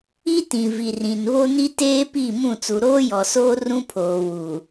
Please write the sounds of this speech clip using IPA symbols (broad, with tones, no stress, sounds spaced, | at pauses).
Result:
i˦ t ĩ˨ v i˨ r ĩ˨ n β o˦ n i˦ t eː˦ p i˦˨ m ũ˦˨ t͡s u˨ ɾ oː˦ j ɔ˨ s oː˦ r ũ˦ pʰ oː˨ w u˨